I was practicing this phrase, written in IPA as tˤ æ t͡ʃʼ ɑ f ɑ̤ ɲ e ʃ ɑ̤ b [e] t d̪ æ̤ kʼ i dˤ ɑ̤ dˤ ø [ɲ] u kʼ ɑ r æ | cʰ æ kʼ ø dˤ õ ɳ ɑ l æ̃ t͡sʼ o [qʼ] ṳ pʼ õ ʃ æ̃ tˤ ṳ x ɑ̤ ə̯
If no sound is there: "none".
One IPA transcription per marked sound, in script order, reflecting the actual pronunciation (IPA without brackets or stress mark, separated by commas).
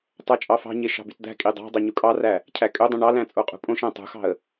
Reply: y, ɲ, qʼ